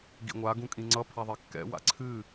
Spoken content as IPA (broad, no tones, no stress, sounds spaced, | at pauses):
ɡ ḭ ŋʷ a ɡ ũ kʼ ĩ ŋ͡ǀ ʌ pʰ a ðˤ ɛ kː ɛ̰ w a̰ ǀʰ ɨ